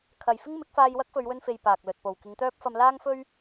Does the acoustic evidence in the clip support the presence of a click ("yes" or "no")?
no